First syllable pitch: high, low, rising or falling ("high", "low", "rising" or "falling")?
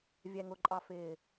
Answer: low